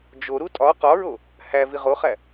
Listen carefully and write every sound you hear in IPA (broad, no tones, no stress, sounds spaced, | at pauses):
d͡ʒ o ɾ u tʼ ɒ q ɒ ɹ o | h æ v i ʁ o χ æ